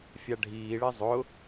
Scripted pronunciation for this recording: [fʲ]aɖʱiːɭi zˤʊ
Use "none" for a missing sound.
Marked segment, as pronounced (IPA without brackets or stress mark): fʲ